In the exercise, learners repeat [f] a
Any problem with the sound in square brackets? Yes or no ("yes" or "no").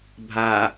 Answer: yes